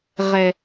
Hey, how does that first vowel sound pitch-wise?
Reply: low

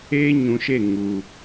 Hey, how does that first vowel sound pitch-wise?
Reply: high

